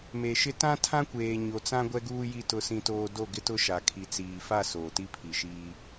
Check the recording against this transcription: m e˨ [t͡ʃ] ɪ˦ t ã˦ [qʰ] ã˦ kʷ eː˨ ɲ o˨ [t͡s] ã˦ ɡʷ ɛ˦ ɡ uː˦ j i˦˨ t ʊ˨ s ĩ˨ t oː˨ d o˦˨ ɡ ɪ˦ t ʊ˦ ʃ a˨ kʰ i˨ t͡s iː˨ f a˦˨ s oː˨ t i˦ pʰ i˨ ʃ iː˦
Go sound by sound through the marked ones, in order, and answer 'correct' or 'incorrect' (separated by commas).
incorrect, incorrect, correct